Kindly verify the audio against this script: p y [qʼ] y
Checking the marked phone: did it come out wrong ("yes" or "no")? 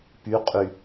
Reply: no